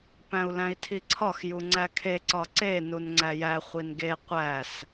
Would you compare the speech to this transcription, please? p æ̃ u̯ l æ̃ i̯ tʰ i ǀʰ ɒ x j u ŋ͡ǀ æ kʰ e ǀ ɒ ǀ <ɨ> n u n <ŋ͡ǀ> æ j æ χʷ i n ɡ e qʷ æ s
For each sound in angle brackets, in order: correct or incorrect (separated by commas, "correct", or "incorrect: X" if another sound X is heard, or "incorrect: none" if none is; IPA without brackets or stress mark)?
incorrect: e, correct